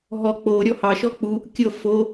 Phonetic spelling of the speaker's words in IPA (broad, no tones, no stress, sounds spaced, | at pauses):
ɦ ɔ k͡p o ɾʲ ɔ h ɑ ʃ ɔ k͡p u | kʲ ɤ f o